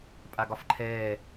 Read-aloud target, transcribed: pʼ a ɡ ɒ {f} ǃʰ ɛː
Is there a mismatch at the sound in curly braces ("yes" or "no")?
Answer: no